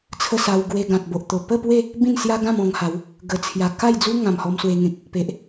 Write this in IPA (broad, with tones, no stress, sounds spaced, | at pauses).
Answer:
t͡sʰ ə˥˧ s a˧ w ɡ w e˧ ɡ ã˨ t̚ b o˨ ʔ t̪ o˨˩ p ə˥˧ p w e˥˧ | b ĩ˥˧ n s j a˦ ɡ ã˥˧ m ɔ̃˧ ŋ h a˨˦ w | ɡ ə˨˩ t͡sʰ j a˨˩ k a˥˧ j d͡z u˦ ŋ ã˨˩ m h ɔ˧ m s w e˧ ŋ ẽ˨ k̚ | p e˨ ʔ